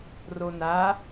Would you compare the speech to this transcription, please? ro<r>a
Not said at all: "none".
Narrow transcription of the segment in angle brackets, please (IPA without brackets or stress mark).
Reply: n